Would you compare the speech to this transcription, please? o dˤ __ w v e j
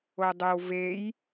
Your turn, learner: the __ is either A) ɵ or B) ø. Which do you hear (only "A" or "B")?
B